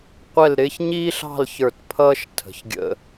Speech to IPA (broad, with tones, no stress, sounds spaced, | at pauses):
qʷ ɛ˥˧ l ɾ ɪː˥ ç ɲ iː˥ ɬ ɑ̤˥˧ l ç ə˞˧˩ t pʰ ʌː˥ ʃ tʰ ə̤˩˧ ç ɡʲ ə̰˧